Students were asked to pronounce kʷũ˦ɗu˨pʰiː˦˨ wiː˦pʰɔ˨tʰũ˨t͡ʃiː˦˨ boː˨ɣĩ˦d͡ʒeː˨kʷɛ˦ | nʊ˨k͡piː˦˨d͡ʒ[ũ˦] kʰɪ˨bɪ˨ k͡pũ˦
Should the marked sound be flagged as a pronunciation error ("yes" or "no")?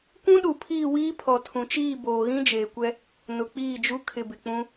yes